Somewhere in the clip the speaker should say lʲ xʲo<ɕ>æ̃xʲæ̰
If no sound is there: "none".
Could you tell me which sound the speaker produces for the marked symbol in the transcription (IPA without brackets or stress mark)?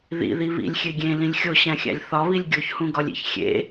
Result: ɕ